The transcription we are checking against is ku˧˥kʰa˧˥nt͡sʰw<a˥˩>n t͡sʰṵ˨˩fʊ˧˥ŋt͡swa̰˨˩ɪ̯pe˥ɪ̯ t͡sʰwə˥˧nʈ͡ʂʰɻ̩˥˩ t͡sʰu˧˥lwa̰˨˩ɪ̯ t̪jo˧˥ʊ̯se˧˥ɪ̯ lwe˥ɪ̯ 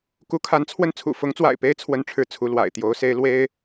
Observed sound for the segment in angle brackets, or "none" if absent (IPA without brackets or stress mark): ə˥˩